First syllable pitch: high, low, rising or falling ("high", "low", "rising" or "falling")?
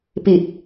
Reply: low